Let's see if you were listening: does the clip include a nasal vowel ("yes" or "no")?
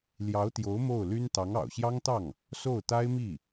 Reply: no